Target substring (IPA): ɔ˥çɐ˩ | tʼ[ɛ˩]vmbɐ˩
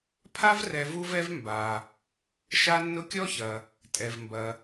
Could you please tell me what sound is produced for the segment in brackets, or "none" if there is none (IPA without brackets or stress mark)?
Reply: ɛ˩